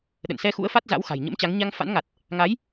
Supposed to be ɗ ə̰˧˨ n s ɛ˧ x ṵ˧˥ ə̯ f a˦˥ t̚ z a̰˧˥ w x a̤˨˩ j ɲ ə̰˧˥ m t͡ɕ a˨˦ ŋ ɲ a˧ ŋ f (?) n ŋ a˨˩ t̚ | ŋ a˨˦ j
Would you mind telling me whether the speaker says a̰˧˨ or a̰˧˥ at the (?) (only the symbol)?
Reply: a̰˧˥